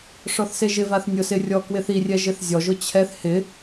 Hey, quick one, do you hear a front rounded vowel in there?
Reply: no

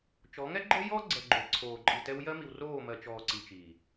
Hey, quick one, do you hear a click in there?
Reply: yes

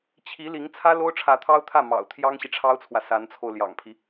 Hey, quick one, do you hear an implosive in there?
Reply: no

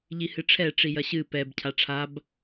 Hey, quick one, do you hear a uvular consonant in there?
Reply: no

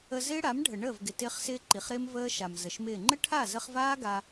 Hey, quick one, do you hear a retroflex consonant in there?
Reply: yes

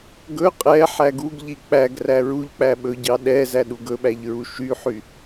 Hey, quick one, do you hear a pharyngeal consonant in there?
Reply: yes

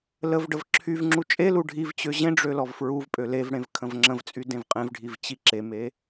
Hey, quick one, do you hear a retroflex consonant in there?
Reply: yes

